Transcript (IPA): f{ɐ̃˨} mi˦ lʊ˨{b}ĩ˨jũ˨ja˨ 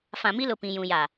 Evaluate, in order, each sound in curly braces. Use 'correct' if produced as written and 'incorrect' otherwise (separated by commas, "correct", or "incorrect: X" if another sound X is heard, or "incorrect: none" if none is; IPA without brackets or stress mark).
incorrect: ã˨, incorrect: p